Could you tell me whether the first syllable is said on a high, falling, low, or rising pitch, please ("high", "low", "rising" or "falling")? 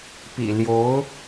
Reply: low